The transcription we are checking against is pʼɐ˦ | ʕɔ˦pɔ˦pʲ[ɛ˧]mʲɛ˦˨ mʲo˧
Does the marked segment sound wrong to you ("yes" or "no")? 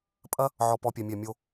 no